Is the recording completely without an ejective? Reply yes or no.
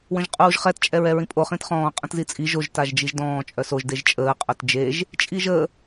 no